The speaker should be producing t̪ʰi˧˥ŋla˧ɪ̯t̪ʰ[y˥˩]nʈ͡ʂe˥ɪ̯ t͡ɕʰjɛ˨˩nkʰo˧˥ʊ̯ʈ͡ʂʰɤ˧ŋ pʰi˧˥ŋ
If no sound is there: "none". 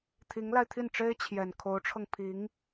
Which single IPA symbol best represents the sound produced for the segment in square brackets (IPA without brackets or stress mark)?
i˥˩